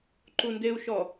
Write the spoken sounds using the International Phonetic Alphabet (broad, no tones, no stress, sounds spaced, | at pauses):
ǃ u n d e u̯ ʃ ɔ